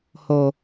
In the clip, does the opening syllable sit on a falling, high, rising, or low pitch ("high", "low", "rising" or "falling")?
low